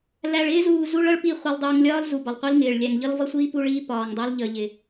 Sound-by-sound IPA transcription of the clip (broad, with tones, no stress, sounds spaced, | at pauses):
l æ˨ ɭ ɪː˦ z uː˨ z u˦ ɭ ʌ˦ ɭ p i˦˨ χʷ ʌ˨ lˠ dˤ uː˨ ŋ lʲ ɒː˦ l z u˨ b ɒ˨ lˠ qʷ i˦ l ŋ ɪː˨ ɭ lʲ æ˨ ŋ ʎ ʌ˦ l v ʌ˦ sʷ iː˦ p u˦ ɭ iː˦ p ɒː˨ ŋ dˤ əː˦ l ʎ ə˨ ʎ ɪ˨